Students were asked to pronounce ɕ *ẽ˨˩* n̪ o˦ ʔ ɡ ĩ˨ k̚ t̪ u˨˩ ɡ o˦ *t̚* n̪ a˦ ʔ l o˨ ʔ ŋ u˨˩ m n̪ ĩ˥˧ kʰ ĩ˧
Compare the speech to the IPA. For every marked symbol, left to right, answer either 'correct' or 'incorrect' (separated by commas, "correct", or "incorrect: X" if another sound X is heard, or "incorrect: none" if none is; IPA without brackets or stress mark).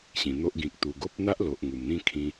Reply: incorrect: ĩ˨˩, incorrect: p̚